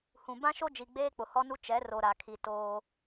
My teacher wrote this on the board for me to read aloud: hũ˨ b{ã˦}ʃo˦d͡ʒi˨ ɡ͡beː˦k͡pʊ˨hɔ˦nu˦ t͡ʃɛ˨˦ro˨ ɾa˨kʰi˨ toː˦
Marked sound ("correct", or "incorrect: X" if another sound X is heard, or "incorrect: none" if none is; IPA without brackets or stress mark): correct